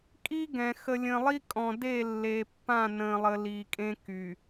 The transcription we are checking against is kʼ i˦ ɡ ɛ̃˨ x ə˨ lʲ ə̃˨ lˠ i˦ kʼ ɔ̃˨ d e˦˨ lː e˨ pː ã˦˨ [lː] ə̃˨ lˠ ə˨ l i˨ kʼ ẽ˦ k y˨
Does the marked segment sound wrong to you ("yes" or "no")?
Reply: yes